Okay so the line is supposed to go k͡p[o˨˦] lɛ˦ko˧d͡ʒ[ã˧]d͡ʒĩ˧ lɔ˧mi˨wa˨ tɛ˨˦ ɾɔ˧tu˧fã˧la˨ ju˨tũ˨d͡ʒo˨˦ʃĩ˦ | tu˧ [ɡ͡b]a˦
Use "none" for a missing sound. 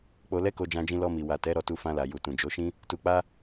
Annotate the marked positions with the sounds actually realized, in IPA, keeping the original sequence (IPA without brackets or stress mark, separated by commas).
o˧, ã˧, k͡p